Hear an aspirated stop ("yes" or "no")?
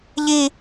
no